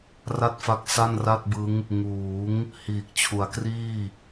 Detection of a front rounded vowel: absent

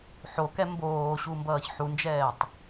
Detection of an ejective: absent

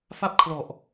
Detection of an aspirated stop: present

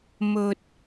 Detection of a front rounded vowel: absent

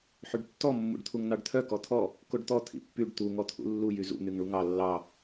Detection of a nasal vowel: absent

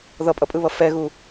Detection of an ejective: present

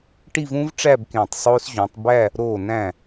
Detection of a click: absent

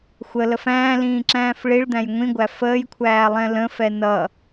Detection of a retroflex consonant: present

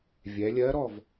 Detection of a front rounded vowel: absent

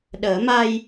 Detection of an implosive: present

